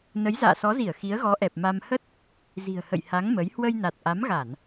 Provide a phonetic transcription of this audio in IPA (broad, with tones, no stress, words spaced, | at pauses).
nə˨˦jza̰ː˧˨sɔ˨˦zi˧˩ə̯ xi˨˦ə̯ɣɔ˨˦ʔɛ˨˩p̚ ma˧m hə˦˥t̚ | zi̤˨˩ə̯hə̰˧˨jha˨˦ŋ mə˨˦j hwə˧j na˨˩t̚ʔa˨˦mɣa˧˩˨n